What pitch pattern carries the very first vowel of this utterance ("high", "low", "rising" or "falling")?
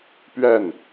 falling